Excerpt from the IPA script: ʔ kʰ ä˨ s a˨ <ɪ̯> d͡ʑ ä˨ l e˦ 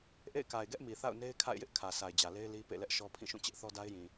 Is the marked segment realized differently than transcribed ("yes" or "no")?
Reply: no